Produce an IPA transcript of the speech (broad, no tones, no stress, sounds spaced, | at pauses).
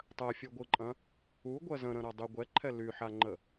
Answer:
tˤ ɜ fʲ ɯ ɡʷ ɯ ǃʼ ɐ̃ | u ɡʷ ɜ z ə̃ ɾ ə̃ ɾ a dˤ y ɡʷ ɛ ǃʰ ɛ l y ħ a ŋ͡ǃ ə